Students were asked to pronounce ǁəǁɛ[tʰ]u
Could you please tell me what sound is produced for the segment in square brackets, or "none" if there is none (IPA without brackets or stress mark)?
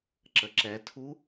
tʰ